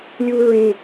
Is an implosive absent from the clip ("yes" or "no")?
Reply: yes